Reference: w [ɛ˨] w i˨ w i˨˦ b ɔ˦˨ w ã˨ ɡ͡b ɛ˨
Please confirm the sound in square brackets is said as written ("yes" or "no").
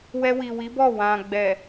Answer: no